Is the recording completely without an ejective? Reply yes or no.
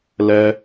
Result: yes